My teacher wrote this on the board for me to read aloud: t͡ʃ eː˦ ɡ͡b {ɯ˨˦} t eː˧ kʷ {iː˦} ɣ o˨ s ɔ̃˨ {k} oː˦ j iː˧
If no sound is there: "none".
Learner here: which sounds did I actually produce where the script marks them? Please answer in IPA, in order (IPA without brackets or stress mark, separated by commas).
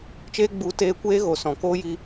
u˨˦, eː˦, k